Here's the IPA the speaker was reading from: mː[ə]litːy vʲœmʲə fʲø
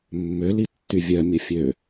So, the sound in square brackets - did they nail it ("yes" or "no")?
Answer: no